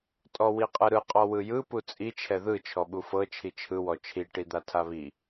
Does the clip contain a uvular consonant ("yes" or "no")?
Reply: yes